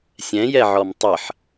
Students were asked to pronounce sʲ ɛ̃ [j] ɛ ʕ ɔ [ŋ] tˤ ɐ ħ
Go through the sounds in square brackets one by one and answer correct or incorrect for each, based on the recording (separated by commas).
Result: correct, incorrect